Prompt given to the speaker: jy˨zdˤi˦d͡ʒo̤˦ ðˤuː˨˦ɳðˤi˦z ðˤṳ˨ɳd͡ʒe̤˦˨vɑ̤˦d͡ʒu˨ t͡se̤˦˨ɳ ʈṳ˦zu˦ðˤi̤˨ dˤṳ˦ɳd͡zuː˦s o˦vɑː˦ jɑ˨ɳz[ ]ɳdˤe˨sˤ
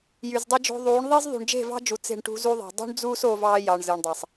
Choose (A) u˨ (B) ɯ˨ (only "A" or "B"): B